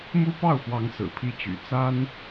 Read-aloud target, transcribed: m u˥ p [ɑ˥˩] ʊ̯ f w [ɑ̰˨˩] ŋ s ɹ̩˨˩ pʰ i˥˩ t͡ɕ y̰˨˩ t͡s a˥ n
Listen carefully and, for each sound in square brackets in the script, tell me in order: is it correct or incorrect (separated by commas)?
correct, incorrect